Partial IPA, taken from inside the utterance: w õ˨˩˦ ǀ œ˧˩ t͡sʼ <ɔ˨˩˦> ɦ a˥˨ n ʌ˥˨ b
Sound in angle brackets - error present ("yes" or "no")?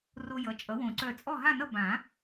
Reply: yes